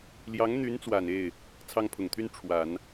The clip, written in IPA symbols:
l j ɑ˧˥ ŋ n̪ y˧˥ n t͡s w a˨˩ n e˥˩ ɪ̯ | t͡sʰ ɑ˥ ŋ pʰ ʊ˨˩ ŋ t̪ʰ y˥ n ʈ͡ʂʰ w a˨˩˦ n

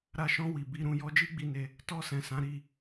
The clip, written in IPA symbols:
ɾ a˧ ʃ ɔ̃˧ w i˨ b i˧ ɾ ũ˧ j ɔ˧ d͡ʒ i˦ ɡ͡b i˧ n e˧ | t ɔ˧ s ɛ̃˨ s ã˨˦ ɾ i˦˨

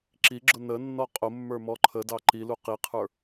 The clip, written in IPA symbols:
ǁ i ɡ͡ǁ ʊ n ə nː ɔ qʼ ʊ mː ə˞ m ɔ ǃʰ ə d ɑ ǃ i l u q i qʰ ə˞

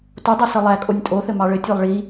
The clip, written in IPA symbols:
t o dˤ o s ɘ lˠ æ kʼ o nʲ tʼ o θ ɘ m ɑ ɭ ɘ tʲ æ lˠ ɭ i

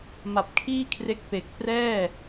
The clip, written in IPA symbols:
m a˨˩ p̚ kʰ iː˥˩ kʰ r e˦˥ k̚ p e˨˩ k̚ p r ɛː˥˩

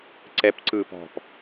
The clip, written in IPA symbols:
ǀ ɛ p ǀ ɯː p ɔ̤ p

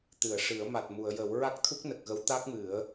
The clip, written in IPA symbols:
t̪ ɨ˨˩˨ ə̯ ʂ ɨ˨˩˦ ə̯ m a˨˩ t̚ m u˨˩˨ ə̯ j ə˨˩˦ w ɹ a˦˥ k̚ t̪ʰ u˦˥ k̚ n ə˨˩ k̚ ɣ ə˧˥ w t̪ a˦˥ k̚ m ɨ˨˩˦ ə̯

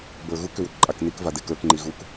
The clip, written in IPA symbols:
b ə˞ ɣ u k ʏ w ʏ k ǃʼ a k n i k v a d e k ə˞ k ŋ͡ǃ i ɣ u k

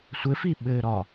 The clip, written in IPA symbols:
sʷ ɘ f i ɓ ɘː ɾ ɒ

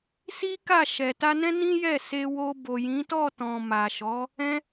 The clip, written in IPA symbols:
s i˦ k a˦˨ ʃ ɛ˨ t a˧ n ɛ̃˦ n ĩ˦ j ɛ˦˨ s e˧ w o˧ b o˨ j ĩ˨˦ t ɔ˦˨ t ɔ̃˨ m a˨ ʃ ɔ˨˦ | ɛ̃˦

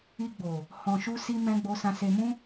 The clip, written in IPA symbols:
i˧ ɡ͡b o˨ | h ɔ̃˨ ʃ u˧ s i˧ m ɛ̃˧ ɡ͡b o˧ s ã˧ s e˧ m ũ˦

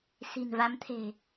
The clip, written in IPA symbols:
s i̤˨˩ n v a˨˦ m t̪ʰ e̤˨˩

